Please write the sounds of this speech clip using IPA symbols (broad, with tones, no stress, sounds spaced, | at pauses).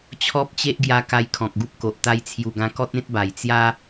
t͡ɕʰ ɔ˦ p̚ t͡ɕ e˦ ʔ ɡ j a˧ k a˧ j kʰ ɔ̃˨ k̚ ɡ u˦ p̚ k o˨ ʔ t̪ a˧ j t͡sʰ j u˨˩ ɡ ã˧ k ɔ˦ t̚ ẽ˦ t̚ b a˨˩ j t͡s j a˦